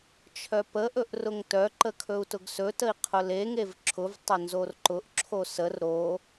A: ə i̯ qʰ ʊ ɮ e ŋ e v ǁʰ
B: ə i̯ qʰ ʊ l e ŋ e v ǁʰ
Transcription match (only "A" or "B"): B